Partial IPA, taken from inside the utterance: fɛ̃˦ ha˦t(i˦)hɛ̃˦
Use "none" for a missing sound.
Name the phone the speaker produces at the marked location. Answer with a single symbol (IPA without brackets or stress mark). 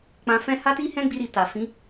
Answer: i˦